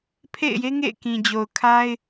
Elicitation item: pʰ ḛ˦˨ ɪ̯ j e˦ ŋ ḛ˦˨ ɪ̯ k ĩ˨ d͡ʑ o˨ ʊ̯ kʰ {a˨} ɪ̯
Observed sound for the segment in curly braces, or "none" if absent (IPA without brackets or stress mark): a˦